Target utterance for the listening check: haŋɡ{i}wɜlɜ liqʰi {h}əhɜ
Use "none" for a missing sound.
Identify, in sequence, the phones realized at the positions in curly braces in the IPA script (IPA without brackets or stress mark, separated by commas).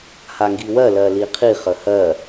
i, χ